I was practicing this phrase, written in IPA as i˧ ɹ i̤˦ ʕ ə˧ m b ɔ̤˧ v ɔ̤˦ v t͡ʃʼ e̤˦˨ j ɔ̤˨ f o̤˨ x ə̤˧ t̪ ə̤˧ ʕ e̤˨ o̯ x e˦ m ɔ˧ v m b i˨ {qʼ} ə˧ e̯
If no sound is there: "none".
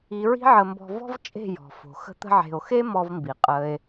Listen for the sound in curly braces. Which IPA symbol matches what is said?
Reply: qʼ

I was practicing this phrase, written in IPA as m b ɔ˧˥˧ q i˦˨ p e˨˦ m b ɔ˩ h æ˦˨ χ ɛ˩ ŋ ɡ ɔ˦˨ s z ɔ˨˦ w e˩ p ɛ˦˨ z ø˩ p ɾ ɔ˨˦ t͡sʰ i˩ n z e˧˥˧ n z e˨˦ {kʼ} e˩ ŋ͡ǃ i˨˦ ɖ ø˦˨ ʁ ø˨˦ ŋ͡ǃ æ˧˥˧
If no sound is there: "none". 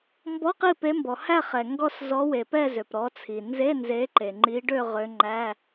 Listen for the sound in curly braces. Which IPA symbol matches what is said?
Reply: ǃ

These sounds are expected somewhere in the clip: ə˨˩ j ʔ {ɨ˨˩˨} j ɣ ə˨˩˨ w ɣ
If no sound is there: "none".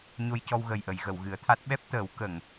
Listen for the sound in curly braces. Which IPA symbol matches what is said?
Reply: ə˨˩˨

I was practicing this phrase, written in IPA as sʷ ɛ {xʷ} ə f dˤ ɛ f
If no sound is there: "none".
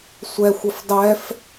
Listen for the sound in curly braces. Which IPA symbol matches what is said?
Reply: xʷ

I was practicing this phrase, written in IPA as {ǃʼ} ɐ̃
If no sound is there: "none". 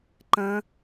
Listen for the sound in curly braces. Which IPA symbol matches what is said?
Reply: ǃ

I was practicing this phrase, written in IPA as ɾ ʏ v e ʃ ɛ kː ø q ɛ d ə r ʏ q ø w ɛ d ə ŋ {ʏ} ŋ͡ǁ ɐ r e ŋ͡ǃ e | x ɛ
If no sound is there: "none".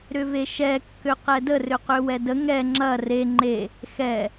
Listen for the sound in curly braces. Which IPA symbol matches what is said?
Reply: ɛ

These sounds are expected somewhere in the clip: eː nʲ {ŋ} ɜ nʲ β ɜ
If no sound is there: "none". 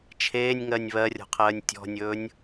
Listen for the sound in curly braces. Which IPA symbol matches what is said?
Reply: ŋ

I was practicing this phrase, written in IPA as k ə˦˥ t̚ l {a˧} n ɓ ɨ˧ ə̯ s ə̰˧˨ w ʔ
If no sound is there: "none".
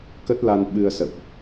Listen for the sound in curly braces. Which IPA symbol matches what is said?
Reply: a˧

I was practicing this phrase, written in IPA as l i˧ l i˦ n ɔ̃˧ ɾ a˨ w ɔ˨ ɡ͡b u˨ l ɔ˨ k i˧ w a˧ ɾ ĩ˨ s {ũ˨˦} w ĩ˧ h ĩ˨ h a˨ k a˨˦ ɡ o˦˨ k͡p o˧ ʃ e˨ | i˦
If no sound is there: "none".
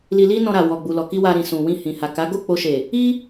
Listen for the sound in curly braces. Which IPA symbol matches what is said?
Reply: ũ˨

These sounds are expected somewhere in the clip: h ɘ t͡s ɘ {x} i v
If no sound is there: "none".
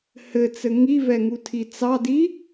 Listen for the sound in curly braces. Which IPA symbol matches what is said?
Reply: ŋ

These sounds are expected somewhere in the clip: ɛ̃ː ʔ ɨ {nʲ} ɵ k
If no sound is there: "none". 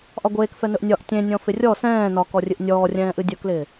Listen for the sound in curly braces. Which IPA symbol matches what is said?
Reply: dʲ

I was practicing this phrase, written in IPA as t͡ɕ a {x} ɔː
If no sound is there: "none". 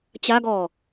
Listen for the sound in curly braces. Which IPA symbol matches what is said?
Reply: ɡ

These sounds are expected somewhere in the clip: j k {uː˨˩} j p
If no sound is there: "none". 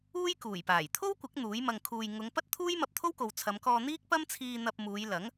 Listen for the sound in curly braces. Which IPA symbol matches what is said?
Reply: uː˨˩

